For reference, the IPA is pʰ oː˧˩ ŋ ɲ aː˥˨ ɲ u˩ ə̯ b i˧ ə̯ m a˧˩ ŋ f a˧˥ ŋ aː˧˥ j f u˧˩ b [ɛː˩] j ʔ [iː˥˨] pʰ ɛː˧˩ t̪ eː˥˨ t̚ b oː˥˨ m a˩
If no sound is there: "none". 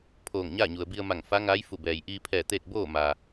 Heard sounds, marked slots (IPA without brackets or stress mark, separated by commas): ɛː˩, iː˧